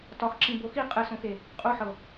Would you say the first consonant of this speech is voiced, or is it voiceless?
voiceless